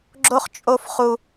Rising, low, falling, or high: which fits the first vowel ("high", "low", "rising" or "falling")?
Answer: high